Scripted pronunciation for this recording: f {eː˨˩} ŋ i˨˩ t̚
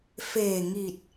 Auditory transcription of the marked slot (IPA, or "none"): eː˨˩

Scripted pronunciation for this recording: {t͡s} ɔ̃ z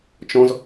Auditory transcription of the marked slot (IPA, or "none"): t͡ʃ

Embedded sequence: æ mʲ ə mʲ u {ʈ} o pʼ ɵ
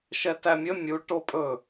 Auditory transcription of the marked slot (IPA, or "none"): ʈ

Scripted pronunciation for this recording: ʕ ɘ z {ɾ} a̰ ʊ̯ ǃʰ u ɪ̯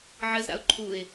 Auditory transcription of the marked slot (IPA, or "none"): ɾ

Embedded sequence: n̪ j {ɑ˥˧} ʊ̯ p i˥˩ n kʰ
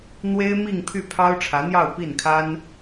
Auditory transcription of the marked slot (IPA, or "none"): ɑ˥˧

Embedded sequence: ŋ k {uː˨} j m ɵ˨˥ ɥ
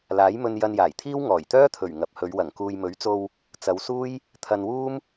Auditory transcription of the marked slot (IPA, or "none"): uː˨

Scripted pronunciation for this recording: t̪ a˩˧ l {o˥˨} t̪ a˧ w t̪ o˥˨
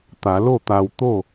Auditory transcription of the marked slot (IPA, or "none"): o˥˨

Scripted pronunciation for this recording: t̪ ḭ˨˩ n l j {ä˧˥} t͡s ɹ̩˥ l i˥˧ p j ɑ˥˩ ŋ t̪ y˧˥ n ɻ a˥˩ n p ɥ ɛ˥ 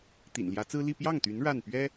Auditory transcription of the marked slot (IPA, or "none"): ä˧˥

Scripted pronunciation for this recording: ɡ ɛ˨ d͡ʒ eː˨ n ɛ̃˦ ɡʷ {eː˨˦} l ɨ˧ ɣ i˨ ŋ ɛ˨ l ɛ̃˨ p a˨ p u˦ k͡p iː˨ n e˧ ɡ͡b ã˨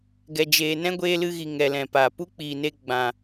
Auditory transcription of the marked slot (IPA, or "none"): eː˧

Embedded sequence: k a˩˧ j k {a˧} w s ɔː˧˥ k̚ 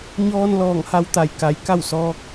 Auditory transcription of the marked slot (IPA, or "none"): a˥˨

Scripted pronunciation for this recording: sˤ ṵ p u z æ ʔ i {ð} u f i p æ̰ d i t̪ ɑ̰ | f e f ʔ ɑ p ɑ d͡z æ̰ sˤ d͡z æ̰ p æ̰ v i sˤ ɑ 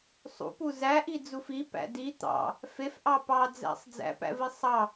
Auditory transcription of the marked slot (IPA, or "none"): d͡z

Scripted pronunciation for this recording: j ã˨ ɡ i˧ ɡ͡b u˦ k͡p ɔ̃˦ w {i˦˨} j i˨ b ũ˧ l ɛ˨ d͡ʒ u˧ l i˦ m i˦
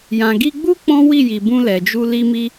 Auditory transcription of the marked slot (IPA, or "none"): i˦˨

